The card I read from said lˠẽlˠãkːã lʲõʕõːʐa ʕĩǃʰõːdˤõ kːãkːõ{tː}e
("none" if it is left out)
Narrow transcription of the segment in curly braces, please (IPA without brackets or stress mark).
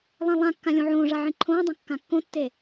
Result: tː